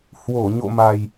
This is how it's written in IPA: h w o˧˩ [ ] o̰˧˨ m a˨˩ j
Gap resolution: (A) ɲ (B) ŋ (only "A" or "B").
A